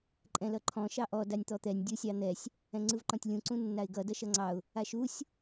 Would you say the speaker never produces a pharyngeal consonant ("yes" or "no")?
yes